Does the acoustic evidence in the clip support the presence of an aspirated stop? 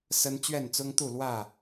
no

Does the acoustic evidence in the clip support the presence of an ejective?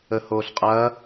yes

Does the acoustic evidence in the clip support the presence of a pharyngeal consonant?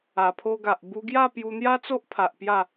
no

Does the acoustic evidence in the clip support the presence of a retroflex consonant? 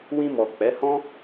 no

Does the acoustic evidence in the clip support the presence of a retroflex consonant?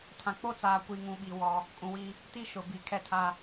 no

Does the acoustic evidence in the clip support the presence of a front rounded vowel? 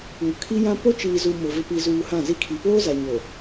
no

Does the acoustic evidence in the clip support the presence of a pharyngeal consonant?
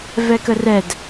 no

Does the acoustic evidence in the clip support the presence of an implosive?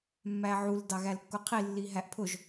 no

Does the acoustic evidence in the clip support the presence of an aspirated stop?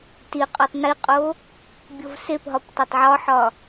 no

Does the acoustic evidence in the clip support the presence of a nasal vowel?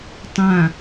yes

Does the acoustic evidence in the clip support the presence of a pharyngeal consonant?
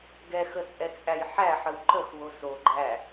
yes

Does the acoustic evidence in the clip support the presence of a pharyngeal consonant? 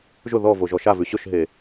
no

